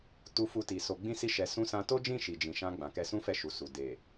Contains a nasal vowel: yes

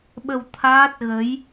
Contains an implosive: yes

